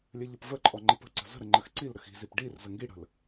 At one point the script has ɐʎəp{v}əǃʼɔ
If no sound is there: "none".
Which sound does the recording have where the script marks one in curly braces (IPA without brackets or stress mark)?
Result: v